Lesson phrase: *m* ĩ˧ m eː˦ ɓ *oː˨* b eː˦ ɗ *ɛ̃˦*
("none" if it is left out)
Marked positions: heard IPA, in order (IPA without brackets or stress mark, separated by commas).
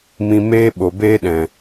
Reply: m, o˨, ɛ̃˨